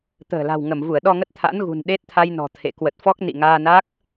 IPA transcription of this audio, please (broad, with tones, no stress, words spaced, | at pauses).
t̪ə̤ː˨˩la̤˨˩w ŋə˧˩mvu˧˩ə̯ɗɔ˧ŋə˦˥t̚ t̪ʰa̰˧˥nɣṳ˨˩n ɗe˦˥t̚t̪ʰa˧jnɔ̤˨˩ t̪ʰḛ˧˨ kwə˨˩t̚fɔ˦˥k̚ nḭ˧˨ŋaː˧na˦˥k̚